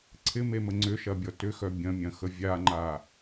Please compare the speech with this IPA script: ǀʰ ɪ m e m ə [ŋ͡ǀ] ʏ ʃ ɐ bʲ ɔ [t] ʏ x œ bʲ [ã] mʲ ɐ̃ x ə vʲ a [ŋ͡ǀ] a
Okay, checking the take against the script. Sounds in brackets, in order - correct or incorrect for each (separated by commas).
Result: correct, correct, incorrect, incorrect